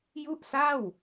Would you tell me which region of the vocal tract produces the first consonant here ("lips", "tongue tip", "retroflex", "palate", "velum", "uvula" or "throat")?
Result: palate